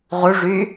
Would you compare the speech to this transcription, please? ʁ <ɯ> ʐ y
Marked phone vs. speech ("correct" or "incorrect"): incorrect